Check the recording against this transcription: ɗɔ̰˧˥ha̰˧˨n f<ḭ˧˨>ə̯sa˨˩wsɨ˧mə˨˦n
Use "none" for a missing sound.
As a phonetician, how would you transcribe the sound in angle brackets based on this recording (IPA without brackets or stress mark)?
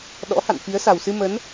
i˨˦